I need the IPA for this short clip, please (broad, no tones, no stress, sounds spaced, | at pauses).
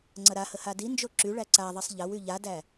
ŋ͡ǀ ɐ ɾ a h ə h a d i n d͡ʒ o ǁ y ɭ æ ǀ a ðˤ ɛ sˤ ʎ ɐ w y ʎ a d æ